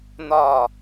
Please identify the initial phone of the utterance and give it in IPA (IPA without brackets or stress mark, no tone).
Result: n̪